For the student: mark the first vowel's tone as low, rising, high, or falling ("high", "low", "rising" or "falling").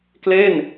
falling